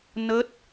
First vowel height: mid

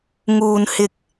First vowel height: high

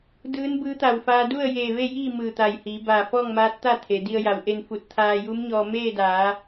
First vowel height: high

